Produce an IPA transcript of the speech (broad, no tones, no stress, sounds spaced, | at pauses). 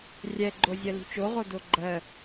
rʲ ɛ ɡ͡ǃ o zʲ ɜ l ṳ t͡ʃ o ʁ o d o ɡ͡ǃ ɜ